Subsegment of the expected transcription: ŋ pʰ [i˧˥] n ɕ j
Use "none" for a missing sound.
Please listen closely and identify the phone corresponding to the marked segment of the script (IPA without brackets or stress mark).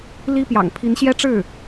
i˧˥